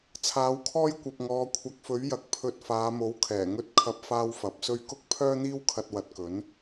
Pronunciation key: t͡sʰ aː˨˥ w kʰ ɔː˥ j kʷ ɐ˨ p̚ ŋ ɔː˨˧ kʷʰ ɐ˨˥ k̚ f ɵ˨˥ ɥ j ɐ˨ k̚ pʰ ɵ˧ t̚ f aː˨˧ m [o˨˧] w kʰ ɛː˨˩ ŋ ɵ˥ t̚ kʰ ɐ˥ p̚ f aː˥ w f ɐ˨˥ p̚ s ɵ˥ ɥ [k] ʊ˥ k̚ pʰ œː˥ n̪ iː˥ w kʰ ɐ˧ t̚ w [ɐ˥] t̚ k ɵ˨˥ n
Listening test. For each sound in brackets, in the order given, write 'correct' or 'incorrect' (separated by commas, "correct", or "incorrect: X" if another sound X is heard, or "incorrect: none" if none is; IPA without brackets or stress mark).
incorrect: o˨˥, correct, incorrect: ɐ˨